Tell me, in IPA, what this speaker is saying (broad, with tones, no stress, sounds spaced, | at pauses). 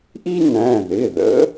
ʔ i˥ n æ̃˩˧˩ ð ɪ˩˧˩ ð ə̰˧˥